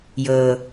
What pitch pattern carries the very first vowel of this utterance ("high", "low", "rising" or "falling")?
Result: low